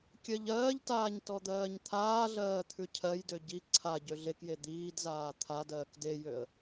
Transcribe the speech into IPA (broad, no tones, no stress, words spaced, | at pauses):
kʲɜʎɜːʎtaːɲ tɔd̪ɜːɲt̪ʰaːɮɜː t̪ʰʉcʰɜjdø ɟi ǀʰa ɟøɮekje d̪iːdzaː t̪ʰadɜːk dejøə̯